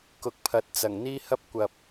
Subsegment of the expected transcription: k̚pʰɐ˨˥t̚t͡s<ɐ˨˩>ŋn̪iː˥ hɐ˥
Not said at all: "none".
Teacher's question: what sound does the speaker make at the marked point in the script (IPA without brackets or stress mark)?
ɐ˨˩